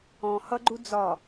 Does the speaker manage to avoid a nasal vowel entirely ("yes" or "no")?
no